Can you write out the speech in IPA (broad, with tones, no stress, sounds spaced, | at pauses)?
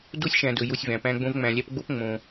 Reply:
d u˦ sʲ ʃ æ̃˨ d ɵ˨ j u˧ sʲ v æ̃˨ p æ̃˧ ɡ͡b õ˧ v ŋ͡m æ̃˨ lʲ æ˧ p ɡ͡b o˦ p ŋ͡m õ˧